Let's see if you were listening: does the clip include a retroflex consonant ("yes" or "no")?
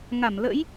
no